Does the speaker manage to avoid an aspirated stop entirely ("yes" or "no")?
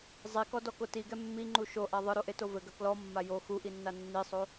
yes